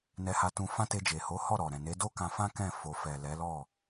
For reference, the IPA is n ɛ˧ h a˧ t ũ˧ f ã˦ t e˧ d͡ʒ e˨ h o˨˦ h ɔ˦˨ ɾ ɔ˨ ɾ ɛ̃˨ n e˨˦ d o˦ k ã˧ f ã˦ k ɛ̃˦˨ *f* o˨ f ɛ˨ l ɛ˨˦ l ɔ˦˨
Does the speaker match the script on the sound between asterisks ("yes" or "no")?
yes